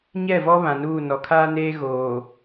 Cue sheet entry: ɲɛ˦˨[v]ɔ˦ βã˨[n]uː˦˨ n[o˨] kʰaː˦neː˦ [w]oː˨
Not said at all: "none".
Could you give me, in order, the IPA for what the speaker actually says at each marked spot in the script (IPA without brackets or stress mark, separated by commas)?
v, n, ɔ˨, ɣ